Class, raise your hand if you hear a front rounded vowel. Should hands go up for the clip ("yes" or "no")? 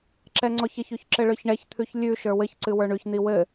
no